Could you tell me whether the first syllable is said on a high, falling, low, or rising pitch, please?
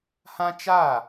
high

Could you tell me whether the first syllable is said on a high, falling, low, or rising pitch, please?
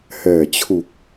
low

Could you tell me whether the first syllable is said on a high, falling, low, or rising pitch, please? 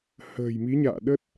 low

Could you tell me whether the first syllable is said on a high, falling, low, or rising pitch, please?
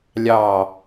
falling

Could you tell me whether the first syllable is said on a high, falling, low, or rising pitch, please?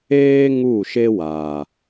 high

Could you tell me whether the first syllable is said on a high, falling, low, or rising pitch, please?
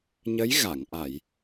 rising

